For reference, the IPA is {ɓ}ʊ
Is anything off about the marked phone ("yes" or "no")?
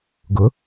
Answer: yes